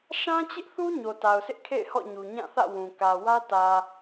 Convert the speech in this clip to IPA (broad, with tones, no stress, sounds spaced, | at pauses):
ʃ ã˦ t͡ɕ ɪ˦ ʔ θ u˦ ɲ o˨ t a˨ ʊ̯ sʰ ɪ˦ ʔ kʰ ḛ˦˨ ɪ̯ h ɔ̰˦˨ ɲ u˨ ɲ ã˦˨ θ ä̰˦˨ w ũ˨ k ä˨ w ä˦ t ä˨